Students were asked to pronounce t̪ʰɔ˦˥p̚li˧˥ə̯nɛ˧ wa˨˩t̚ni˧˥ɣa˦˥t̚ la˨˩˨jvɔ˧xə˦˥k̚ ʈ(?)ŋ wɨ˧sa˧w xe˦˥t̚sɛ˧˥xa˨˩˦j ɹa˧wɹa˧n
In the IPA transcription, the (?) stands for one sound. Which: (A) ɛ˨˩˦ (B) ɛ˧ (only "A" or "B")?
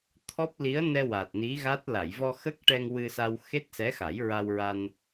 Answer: B